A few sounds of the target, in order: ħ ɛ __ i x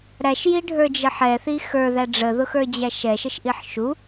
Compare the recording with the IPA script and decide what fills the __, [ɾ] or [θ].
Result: θ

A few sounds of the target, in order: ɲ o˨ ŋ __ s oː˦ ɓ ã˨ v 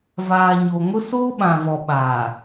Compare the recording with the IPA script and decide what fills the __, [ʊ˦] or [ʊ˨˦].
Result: ʊ˦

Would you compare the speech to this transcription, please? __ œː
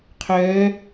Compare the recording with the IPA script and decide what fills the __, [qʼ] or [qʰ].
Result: qʰ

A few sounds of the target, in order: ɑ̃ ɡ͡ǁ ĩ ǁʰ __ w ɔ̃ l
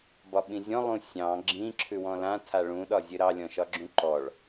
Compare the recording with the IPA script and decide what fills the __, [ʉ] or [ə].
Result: ʉ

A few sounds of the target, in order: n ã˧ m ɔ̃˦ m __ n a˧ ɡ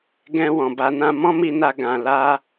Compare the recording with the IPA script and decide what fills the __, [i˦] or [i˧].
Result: i˧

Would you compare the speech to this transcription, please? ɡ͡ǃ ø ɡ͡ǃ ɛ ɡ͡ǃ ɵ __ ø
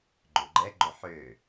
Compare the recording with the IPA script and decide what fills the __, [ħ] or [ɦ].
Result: ħ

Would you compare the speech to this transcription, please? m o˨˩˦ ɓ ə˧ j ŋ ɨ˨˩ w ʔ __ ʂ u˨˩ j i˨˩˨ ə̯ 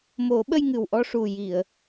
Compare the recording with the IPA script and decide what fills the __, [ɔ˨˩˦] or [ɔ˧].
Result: ɔ˧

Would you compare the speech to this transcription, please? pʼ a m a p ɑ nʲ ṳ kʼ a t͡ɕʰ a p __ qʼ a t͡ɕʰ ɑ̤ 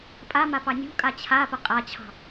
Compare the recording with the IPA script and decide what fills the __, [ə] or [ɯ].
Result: ə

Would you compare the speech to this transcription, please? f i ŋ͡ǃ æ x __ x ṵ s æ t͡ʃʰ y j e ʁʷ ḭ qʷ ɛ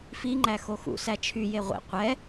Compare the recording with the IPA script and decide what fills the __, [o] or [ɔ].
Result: o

